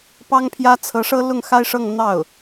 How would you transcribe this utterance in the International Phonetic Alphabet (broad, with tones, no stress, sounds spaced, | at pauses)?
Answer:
p ɑ˥ ŋ pʰ j ä˥ t͡sʰ ɤ˧˥ ʂ ɤ˥ l ʊ˥˩ ŋ x a˥ ɪ̯ ʂ ɤ˥˧ ŋ n̪ ɑ˥˩ ʊ̯